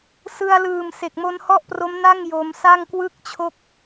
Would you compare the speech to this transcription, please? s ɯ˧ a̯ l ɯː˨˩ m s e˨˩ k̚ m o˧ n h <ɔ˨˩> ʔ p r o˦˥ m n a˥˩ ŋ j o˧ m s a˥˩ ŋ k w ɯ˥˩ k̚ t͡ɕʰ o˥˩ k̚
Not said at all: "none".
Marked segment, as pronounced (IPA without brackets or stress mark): ɔ˥˩